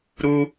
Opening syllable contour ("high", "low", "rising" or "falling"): high